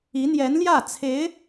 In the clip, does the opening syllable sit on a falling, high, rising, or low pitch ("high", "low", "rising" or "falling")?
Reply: rising